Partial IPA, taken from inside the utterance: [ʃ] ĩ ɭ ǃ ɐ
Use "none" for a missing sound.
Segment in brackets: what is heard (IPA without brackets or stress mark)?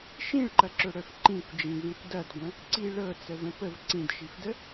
ʃ